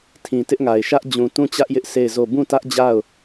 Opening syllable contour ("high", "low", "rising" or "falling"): low